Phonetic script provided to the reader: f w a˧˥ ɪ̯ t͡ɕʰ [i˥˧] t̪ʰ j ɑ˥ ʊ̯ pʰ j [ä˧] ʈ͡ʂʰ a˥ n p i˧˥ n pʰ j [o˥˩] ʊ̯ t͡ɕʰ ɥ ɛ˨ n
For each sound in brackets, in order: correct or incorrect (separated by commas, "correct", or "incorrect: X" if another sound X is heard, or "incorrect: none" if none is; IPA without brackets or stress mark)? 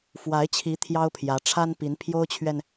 incorrect: i˧˥, incorrect: ä˧˥, incorrect: o˥